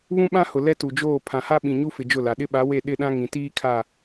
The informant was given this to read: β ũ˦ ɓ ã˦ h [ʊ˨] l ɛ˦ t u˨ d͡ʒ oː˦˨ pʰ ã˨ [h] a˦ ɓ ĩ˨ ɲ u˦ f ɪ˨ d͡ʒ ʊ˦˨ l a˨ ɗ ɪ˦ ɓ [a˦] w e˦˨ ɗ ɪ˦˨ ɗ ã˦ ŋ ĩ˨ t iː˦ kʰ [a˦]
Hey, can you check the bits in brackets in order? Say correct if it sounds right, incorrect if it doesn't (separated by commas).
correct, correct, incorrect, incorrect